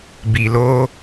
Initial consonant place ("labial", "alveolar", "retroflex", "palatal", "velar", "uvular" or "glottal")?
labial